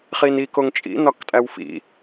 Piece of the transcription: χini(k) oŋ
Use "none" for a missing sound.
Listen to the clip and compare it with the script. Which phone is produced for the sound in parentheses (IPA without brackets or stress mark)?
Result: k